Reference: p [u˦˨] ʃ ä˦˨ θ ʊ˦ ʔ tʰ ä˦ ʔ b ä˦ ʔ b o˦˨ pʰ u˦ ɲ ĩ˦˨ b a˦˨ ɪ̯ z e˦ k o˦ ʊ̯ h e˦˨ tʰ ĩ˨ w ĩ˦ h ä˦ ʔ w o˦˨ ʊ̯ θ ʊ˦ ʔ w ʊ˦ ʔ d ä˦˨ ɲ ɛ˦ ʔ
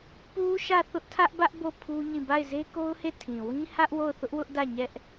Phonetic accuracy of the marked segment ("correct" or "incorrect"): incorrect